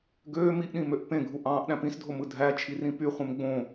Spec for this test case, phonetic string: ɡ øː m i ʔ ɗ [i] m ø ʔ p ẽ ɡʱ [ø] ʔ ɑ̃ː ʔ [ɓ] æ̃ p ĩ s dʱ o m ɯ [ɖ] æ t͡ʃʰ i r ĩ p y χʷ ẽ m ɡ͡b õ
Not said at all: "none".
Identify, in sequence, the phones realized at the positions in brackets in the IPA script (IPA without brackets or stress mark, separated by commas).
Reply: ĩ, u, ɗ, dʱ